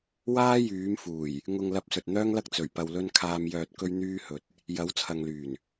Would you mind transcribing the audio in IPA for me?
w aː˥ j yː˨˥ m f uː˨˩ j | ŋ ʊ˨ ŋ l ɐ˧ p̚ s ɵ˨ t̚ n̪ œː˥ ŋ l ɐ˥ k̚ t͡s ɵ˨˩ ɥ p ɐ˨ w l ɵ˧ n kʰ aː˨ m j œː˨ t̚ k ɵ˧ ɥ n̪ yː˧ h ɵ˨ t̚ | j ɐ˨˥ w t͡sʰ ɐ˨ ŋ l yː˨˩ n

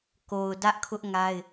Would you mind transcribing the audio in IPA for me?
k o˨ ʊ̯ d ä˦ ʔ kʰ ʊ˦ ʔ ŋ a˦ ɪ̯

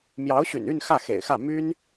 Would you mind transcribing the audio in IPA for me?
m j ɑ˧˥ ʊ̯ ɕ y̰˨˩ n y˥˧ n x ä˥˩ x ḛ˨˩ ɪ̯ x ä˥˩ m y˥ n

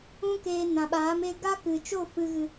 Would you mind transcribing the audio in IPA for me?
ũ˦ k eː˧ n ã˨ ɓ aː˨˦ m e˧ ɡ a˦ k ɨ˨ t͡ʃ o˦˨ f ɨ˧ ɣ ɨ˧

